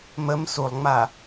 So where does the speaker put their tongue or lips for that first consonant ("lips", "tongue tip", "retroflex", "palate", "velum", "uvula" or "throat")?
lips